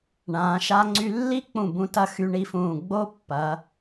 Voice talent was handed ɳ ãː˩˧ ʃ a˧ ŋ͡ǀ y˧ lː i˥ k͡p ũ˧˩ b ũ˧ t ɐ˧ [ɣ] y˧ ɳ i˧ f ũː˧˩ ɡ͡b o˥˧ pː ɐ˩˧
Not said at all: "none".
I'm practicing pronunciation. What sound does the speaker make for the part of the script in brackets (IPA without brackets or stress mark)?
x